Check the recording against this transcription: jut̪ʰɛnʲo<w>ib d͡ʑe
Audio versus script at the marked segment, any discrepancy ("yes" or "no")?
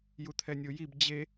yes